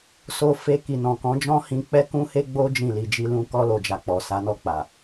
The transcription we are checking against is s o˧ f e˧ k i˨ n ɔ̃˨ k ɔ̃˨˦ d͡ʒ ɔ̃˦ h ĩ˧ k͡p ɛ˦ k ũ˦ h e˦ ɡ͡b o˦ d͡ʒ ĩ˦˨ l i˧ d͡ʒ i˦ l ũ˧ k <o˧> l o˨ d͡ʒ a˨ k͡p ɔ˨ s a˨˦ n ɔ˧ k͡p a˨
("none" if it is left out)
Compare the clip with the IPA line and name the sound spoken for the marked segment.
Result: ɔ˧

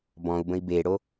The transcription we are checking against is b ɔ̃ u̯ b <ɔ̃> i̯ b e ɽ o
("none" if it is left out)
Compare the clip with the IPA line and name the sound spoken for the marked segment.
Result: ə̃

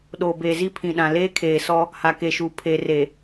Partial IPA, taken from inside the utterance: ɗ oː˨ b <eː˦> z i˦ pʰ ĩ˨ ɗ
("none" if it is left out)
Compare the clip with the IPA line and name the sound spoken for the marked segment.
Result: eː˨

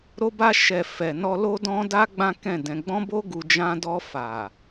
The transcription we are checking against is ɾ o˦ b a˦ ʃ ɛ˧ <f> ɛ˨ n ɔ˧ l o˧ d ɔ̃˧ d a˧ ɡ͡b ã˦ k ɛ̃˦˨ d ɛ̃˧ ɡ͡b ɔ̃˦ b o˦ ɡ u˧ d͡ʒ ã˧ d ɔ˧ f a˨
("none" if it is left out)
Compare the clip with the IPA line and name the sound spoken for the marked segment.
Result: f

